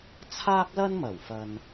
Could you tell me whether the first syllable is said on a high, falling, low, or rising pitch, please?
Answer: high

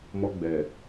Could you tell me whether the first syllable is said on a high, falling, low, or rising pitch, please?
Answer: high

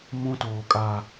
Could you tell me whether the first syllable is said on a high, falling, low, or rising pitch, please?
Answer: high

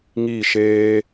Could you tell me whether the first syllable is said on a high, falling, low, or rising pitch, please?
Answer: falling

